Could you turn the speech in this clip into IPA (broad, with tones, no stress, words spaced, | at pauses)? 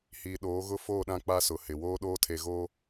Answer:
hiː˨ ɗoː˨˦ɣʊ˦foː˦˨ɗã˦ k͡pa˦sʊ˨hɪ˨ woː˦ɗoː˦tʰe˨ɣoː˦